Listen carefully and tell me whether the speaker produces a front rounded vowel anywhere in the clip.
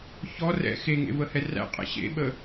no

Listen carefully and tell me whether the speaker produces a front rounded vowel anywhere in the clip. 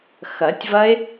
no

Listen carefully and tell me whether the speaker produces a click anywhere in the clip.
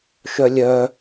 no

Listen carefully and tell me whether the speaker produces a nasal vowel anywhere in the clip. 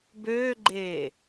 no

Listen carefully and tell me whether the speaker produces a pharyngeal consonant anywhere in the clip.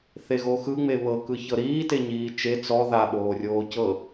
no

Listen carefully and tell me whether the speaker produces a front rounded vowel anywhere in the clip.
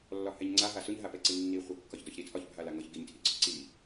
no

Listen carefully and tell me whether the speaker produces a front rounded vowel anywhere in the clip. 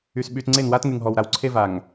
yes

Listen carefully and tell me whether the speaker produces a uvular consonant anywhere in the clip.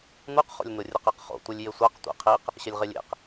yes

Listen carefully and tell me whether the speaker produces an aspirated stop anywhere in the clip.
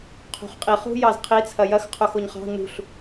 yes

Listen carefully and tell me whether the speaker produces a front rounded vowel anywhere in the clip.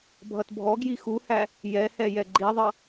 no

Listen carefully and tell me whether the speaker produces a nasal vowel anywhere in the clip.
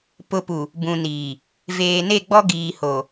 yes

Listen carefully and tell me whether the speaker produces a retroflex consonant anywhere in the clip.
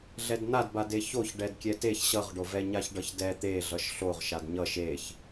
yes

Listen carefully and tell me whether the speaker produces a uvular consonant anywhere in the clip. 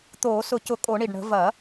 no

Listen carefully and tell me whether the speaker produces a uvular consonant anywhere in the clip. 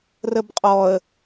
yes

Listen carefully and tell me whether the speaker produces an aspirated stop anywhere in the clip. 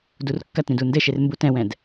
no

